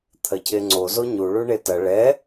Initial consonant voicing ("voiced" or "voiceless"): voiceless